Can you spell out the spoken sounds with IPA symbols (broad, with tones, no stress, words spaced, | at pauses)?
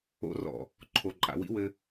o̰˦ rɔ̰˨ | ǃʰo˨ǃʼa̰˨wḭ˦wɘ˦